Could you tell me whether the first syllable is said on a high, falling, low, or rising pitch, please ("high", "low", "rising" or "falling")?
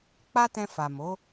high